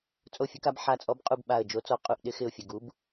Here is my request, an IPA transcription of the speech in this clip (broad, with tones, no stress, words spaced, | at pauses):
t͡sʼo˦˨fʲə˨˥ka˨˥b ħa˨˥t͡sʼɔ˨˥bqʼu˦˨b ɓa˨˩ə̯ d͡ʒo˨˥t͡sɔ˨˩ qʼu˦˨ʔɗɪ˨˥ xɪ˦˨ʊ̯fʲə˨˩ ɡu˨˥b